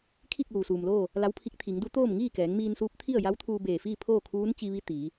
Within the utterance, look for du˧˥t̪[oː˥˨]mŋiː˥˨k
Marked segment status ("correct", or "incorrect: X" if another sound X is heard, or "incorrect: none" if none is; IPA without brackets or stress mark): correct